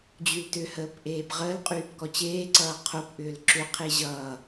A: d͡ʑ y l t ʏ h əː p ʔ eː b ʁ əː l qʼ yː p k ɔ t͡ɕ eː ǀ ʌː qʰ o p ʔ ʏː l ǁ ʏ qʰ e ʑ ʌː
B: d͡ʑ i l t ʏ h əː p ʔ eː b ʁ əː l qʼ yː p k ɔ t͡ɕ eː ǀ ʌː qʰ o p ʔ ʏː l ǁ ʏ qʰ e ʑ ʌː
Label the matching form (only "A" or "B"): A